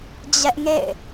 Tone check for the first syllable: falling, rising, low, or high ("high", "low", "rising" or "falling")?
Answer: high